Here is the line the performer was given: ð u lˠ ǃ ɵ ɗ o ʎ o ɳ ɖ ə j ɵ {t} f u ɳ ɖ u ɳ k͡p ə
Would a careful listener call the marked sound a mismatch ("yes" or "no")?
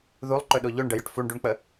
yes